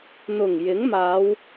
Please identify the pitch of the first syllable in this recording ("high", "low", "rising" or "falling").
low